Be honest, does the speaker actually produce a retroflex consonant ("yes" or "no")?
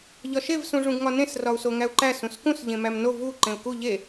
yes